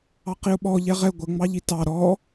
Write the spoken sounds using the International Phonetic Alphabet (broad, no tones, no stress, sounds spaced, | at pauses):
ɑ q i ʊ̯ ɓ ɔ ʎ ɛ ʁ ɛ ɡʷ ə ŋ͡m ɑ ʎ i t ɑ ɾ ɔ